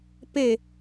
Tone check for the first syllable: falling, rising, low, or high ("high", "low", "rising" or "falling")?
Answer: falling